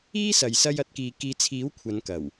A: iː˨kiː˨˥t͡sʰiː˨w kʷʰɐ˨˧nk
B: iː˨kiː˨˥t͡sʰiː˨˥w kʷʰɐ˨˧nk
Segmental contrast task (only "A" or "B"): B